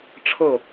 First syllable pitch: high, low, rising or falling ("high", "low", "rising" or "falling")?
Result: falling